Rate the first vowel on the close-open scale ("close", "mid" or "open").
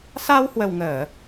open